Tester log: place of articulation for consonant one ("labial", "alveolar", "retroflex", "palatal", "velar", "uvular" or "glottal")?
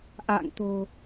glottal